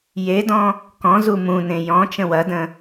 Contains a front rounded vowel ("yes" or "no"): no